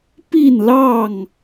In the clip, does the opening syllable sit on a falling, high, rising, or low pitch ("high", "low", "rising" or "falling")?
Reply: falling